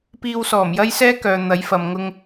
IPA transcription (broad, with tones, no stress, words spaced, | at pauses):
piː˧wsɔː˨˩mjɐ˥jsɛː˥ kœː˨ n̪ɐ˨˥jfɐ˨m ŋʊ˧ŋ